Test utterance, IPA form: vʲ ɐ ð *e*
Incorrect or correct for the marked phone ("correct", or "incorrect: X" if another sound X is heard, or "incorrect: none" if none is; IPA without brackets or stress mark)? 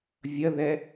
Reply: incorrect: ɛ